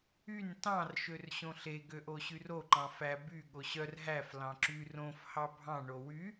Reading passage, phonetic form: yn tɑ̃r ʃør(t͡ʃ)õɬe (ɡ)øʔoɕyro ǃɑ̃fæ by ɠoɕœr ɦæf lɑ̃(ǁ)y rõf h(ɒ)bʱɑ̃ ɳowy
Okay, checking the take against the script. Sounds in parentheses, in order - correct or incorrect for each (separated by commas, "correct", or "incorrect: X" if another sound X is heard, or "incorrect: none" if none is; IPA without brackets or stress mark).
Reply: incorrect: ɕ, correct, correct, incorrect: ɑ